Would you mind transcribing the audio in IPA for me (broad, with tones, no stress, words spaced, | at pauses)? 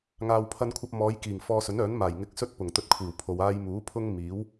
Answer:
ŋaː˨wpʰɐ˧nkʷʰɐ˧p̚ mɔː˨˧jkiː˨˩ŋ fɔː˧sɵ˨˥nœː˨˥n maː˨˩jŋɪ˧k̚sɵ˥t̚ pʊ˨˩ŋt̪ɵ˧t̚kʷʰiː˨˩wpʰo˨w aː˧jmuː˨˥pʰʊ˥ŋmiː˨˥w